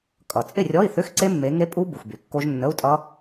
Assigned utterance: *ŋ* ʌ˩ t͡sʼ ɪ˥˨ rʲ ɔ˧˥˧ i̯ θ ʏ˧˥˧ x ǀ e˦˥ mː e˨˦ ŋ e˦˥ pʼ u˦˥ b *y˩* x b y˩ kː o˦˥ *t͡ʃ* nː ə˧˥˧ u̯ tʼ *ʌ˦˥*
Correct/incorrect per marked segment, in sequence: incorrect, incorrect, incorrect, correct

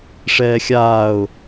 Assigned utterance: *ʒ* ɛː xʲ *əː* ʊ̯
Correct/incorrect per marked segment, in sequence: incorrect, incorrect

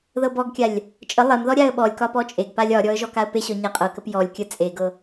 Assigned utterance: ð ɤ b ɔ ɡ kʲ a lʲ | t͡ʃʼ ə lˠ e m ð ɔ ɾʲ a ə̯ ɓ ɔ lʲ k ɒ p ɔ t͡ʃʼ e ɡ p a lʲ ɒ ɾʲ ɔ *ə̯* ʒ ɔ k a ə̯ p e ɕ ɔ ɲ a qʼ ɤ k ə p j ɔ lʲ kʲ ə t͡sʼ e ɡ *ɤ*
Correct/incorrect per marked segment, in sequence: correct, correct

